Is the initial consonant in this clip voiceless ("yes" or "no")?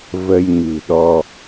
no